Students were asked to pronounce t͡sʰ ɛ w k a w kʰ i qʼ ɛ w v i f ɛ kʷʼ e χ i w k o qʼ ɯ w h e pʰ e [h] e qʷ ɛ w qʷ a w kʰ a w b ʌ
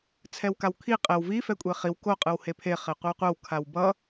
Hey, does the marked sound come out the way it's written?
no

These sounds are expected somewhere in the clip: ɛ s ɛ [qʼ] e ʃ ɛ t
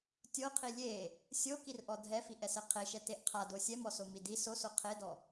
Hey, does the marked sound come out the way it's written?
no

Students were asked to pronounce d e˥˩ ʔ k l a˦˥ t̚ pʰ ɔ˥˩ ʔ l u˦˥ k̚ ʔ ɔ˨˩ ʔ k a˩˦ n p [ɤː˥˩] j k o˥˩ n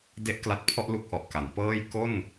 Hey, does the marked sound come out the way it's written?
yes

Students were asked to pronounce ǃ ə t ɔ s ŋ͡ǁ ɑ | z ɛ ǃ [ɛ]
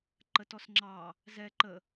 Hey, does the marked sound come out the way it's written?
no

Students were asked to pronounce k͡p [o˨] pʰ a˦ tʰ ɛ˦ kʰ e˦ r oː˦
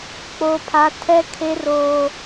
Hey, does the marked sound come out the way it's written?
no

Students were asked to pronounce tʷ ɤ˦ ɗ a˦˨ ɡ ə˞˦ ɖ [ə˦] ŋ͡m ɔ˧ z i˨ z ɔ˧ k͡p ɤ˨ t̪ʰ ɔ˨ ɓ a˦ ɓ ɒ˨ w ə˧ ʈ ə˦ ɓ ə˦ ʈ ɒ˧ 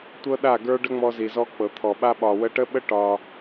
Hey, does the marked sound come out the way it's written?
yes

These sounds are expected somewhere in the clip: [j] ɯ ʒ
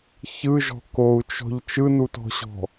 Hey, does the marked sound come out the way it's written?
no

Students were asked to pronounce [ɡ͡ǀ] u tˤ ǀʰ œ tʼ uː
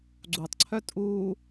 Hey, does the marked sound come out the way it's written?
yes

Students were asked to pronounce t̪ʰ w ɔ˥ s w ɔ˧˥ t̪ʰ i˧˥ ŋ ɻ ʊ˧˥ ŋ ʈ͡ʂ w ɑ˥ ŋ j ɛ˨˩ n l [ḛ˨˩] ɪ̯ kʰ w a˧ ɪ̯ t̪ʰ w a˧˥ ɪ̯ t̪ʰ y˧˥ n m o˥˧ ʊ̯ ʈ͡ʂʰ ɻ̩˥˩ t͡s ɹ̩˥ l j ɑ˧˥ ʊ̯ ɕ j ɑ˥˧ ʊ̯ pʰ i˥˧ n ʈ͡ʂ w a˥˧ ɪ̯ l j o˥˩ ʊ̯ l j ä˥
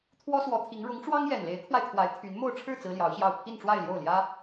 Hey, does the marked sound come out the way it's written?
no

